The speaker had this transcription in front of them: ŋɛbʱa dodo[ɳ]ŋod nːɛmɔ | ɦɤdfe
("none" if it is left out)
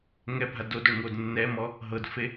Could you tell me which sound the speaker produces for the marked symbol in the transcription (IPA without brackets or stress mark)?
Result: ɳ